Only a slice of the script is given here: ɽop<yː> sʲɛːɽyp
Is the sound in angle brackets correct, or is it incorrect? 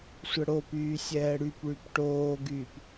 correct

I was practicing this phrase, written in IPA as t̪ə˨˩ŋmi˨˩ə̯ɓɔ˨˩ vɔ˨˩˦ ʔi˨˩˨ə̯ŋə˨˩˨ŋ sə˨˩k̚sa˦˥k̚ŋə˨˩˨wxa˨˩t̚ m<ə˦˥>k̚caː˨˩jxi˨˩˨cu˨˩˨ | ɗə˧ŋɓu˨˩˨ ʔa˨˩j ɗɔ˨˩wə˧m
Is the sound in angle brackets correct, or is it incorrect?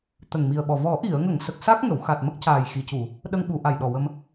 correct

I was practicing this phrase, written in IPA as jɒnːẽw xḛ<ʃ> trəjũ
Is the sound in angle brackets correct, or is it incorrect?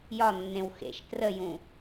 correct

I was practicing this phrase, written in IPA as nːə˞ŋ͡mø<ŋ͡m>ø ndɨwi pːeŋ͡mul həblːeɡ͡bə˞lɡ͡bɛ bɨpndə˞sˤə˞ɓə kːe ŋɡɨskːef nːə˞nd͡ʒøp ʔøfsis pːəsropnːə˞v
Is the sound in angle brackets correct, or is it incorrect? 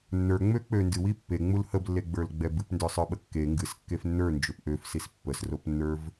incorrect: k͡p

